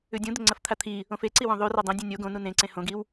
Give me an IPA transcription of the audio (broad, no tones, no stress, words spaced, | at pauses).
ʉdʲũ d̪ɵŋ͡ǀɐft̪ʰat̪ʰi | õfeǀiwõ ðˤʉ radˤõ dʲũnʲo ɡõnu nẽ ǀẽhõɡiw